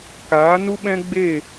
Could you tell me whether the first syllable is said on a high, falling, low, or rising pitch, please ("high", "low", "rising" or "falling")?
rising